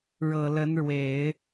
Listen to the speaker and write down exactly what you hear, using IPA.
ɻ ɤ˨˩ l ə˧˥ n ɻ w e˨˩˦ ɪ̯

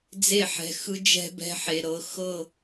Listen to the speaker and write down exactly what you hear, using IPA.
d͡z e˦˨ ħ ɛ̤˨ x ɯ˦ d͡ʒ ɛ̤˦ b ɛ̤˦ ħ e˨ ɾ ɤ˨˦ x ɤ˦˨

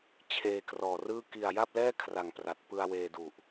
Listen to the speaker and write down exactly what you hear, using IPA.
t͡ɕʰ eː˧ k r ɔː˨˩ r ɯː˥˩ k i˨˩ a̯ j a˥˩ p̚ l ɛː˥˩ kʰ r a˨˩ ŋ p r a˨˩ t̚ p ɯ˧ a̯ w eː˧ d u˨˩ ʔ

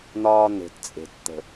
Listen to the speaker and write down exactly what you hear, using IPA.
n̪ ɒː˧ n̪ e̤˨ t t͡sʼ e̤˨ t t̪ ə̤˨

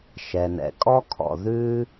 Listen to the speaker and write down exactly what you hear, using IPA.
ʃ ɛ˩ n ɛ̰˩ kʼ ɔ˥ kʰ ɔ̰˩ ð ʉ˧

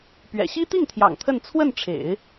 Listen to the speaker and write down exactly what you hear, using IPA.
p ɥ ɛ̰˨˩ ɕ i˥ t̪ i˥˩ ŋ t̪ʰ j ɑ̰˨˩ ŋ t̪ʰ ə˥˧ n t͡sʰ w ə˥˩ n ʈ͡ʂʰ ḛ˨˩˦ ɪ̯

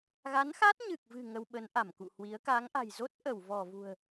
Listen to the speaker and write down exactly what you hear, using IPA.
ɣ a˨˦ n x a˦˥ t̚ ɲ ɨ˨˩ k̚ v ɨ̤˨˩ ŋ ə˧ w ɓ ə˨˦ n ʔ a˧˩ m k ṵ˧˨ h w i˨˦ ə̯ k a˨˦ ŋ ʔ a̤˨˩ j z o˦˥ t̚ ʔ ə˧˩ w v ɔ˧˩ v ṳ˨˩ ə̯

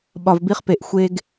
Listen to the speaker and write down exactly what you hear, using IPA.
ɓ ɒ˨ v b i˦ χ p e˨ ʔ xʷ e˦ ɡ

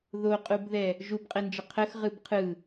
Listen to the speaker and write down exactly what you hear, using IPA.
ð o qʼ u b ð ɛ | ʒ u b qʼ ɛ n d͡ʒ ə qʰ ə x ʁ ɯ b qʰ ɯ

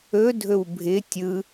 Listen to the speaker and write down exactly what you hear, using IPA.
ɵ dʱ ɵ w bʱ ɪ tʲ ɯ

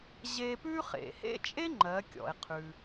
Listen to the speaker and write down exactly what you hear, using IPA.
ʑ e˧ p ʉ˥ χ ḛ˩ h ḛ˥ t͡ʃʼ e˥ ŋ͡ǃ ɜ˩˧ kʲ ɔ̰˩ e̯ qʰ ʉ˩

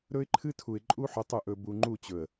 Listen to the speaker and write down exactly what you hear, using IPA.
ɾ ɵ˦ ɪ̯ ǃʰ ɨ˦ tʰ u˨ ɪ̯ ǃʼ u˦ ħ ɵ˨˦ tˤ u˨ ʔ ɵ˨ b u˨ ŋ͡ǃ u˦˨ t͡ɕ ɵ˨ ə̯

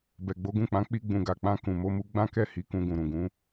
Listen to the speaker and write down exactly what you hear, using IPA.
b ɛ˨ ɡ͡b o˨˦ ɡ ũ˦˨ k͡p ã˨˦ k͡p i˧ ɡ͡b ũ˨ ɡ a˨ k͡p ã˧ k ũ˨ m o˧ m u˧ ɡ͡b ã˦ k ɛ˦˨ h i˨˦ k ũ˧ ɡ ũ˨ ɾ ũ˨ ɡ ũ˨˦

